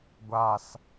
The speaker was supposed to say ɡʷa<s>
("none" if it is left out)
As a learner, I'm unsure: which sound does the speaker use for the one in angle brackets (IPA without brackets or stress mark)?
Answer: s